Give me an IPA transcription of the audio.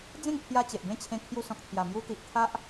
d͡z ẽ˥˧ ŋ pʰ j a˧ t͡ɕ e˨ ʔ b ẽ˥˧ t͡ɕʰ ẽ˧ kʰ j u˧ s ɔ̃˨ k̚ t̪ʰ j a˨˩ m j u˧ t̪ i˨ ʔ t̪ʰ a˦ ʔ

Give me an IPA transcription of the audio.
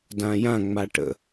d ã j ã ŋ͡m a ʈ ə̰

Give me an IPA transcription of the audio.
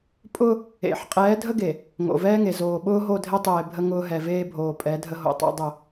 pʼ ʊ˦ | ḛ˨ ħ qʼ ɛː˨˦ dʱ ə˦ ɡ e˨ | ŋ o̰˨ v ɛː˦ ŋ e˨ z oː˨ ɓ ʊː˦ ɦ o˦˨ dʱ e˦ tˤ eː˨ bʱ ə˦ ŋ ʊː˦ ɦ ɛ˨ v eː˦ bʱ oː˨ pʼ ɛ˨˦ dʱ ə˦ ɦ o̰˨ tˤ o̰˦ dˤ ʊ˦˨

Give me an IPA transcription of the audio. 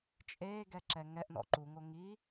t͡ʃʼ eː ɡ ɛ ǁ ɛ ŋ ɛ ʔ n ɔ̰ ǃ u ŋ o ŋ i

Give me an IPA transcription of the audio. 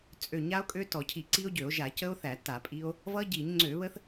t͡sʼ ø˧˩˧ ɲ a˦˥ o̯ kʼ ø˦˥ t ɔ˧˩˧ cʰ i˧˩˧ ǀ i˦˥ o̯ ɟ ø˧˩˧ o̯ ʒ a˧˩˧ c ə˦˥ o̯ θ æ˧˩˧ t a˧˩˧ pʼ i˦˥ o̯ | v ʌ˦˥ ɟ i˧˩˧ ɲ ŋ͡ǀ ø˧˩˧ β ə˦˥ θ

